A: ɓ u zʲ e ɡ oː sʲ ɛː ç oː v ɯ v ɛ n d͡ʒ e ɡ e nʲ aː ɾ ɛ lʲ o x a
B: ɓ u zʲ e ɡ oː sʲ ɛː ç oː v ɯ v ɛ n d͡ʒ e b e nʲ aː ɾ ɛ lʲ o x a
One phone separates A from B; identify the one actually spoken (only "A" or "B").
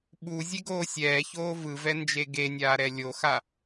A